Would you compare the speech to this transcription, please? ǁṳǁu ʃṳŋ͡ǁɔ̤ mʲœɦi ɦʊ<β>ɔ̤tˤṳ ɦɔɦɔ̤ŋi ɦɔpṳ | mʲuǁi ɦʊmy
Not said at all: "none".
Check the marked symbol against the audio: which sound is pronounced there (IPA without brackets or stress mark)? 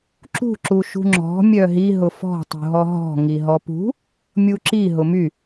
f